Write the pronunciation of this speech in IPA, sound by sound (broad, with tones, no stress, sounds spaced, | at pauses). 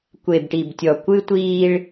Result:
kʷ e˨ b ʈ i˨ b tʲ ɔ˨ kʷ ɨ˦ tʷ iː˦ ɭ